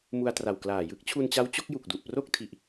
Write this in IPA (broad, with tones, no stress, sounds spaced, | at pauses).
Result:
m u˧ a̯ t r a˨˩ w k l aː˨˩ j ɯ˦˥ k̚ t͡ɕʰ u˧ n t͡ɕ a˦˥ w t͡ɕ o˦˥ k̚ j u˨˩ k̚ d u˨˩ ʔ p r o˥˩ k̚ tʰ i˨˩ ʔ